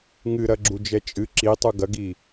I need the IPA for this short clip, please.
ŋɨɾɐɡ͡ǁu d͡ʒɛt͡ʃʼɨ ǁitˤu ɡɐɡi

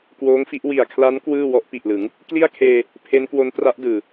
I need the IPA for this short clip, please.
kwoː˦˥ŋfi˦˥ʔ wi˨˩a̯kʰla˦˥n kwɯː˥˩ wɔ˦˥ʔpi˨˩ʔlɯ˩˦ŋ | kli˥˩a̯kʰeː˧ | pʰe˦˥nkwo˦˥n tra˦˥ʔdɯː˨˩

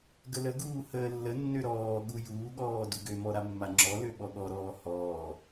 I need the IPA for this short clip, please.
ɡələɡuː həːlːənːø ɾɔːɠu juːɠɔː duɡømɔ ɾamːaŋ͡ǁɔlø ɓɔɠɔɾɔː hɔː

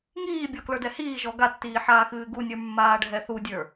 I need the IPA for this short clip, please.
ŋiːbʲɔ klə˞dɛhiːʒɔ ɡatːiː ħaːxɨːɡunʲə˞ mːaːɖʱɛθudʲə˞

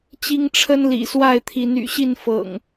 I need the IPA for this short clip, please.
t͡ɕi˦ŋ ʈ͡ʂʰə˦nlḭ˨˩swa˥˨ɪ̯t̪ʰi˨˦n y̰˨˩ɕi˥˨nfɤ̰˨˩ŋ

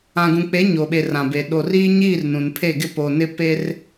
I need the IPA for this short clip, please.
ã˨ɡũ˨k͡pe˨˦ ɲoː˨ɓe˨ rã˨be˨ ɗo˨riː˦ ɲiː˦˨r nũ˨npʰe˦˨ɡɪ˦ po˨nɪ˦ pe˦r

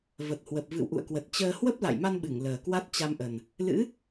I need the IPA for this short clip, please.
və˨˩t̚hwə˨˩p̚ vɨ̰˧˨wʔṵ˧˨ə̯kwə˨˩t̚ t͡ɕəː˧ hwə˦˥p̚la̰˧˨jma˧nɓɨ˧˩ŋ ləː˨˩kwa˦˥t̚t͡ɕa˧mʔə˨˩n | lɨ̰˧˥

